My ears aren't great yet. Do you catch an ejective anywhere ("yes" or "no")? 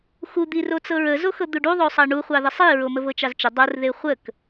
no